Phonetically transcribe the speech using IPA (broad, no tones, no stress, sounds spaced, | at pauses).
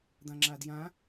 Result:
d̪ ã ŋ͡ǁ a d j ã